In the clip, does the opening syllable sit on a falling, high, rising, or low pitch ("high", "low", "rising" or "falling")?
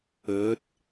rising